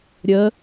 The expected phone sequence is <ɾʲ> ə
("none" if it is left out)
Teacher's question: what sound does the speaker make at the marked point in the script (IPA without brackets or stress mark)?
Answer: ɾʲ